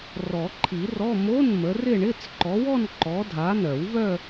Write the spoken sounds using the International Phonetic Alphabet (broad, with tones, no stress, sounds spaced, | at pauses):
r ɔ˨˩˦ ǃʰ i˨˩˦ r ɔ˧˥˧ m o˧˥˧ n m ə˨˦ r ɪ˥˧ ɳ ɪ˧˥˧ t͡s ǃ ɔ˨˦ w ɔ˥˧ n ǃ ɔ˨˦ dʱ a˨˦ n œ˨˩˦ w v œ˥˧